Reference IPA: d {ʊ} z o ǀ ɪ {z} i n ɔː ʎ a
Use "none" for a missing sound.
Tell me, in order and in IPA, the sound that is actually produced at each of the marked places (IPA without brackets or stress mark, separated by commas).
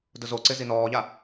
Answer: ʊ, z